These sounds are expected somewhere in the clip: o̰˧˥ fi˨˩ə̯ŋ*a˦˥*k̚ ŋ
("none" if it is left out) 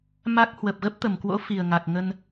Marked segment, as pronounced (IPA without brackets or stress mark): a˨˩